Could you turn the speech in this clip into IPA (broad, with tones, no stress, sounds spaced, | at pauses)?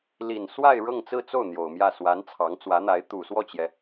l i˨˩ n s w a˥˧ ɪ̯ ɻ ɤ˥˧ ŋ t͡s ɹ̩˥˧ t͡s o˥˩ ʊ̯ n̪ j o˨˩ ʊ̯ m j ä˥˩ s w a˧˥ n t͡sʰ ɑ˧˥ ŋ t͡s w ä˧˥ n̪ a˧˥ ɪ̯ t̪ u˨˩ s w ɔ˥˩ t͡ɕ j ɛ˩